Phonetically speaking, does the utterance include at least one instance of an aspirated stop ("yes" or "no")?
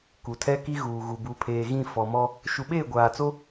yes